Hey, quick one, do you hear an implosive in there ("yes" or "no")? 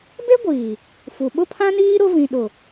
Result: yes